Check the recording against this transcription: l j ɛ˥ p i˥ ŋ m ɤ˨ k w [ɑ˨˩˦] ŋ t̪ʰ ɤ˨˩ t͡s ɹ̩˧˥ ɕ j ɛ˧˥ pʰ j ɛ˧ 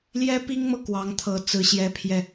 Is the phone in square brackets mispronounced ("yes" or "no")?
yes